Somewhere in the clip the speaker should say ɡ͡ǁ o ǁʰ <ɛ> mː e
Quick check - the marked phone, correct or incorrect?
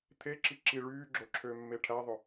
incorrect